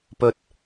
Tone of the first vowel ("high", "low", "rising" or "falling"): high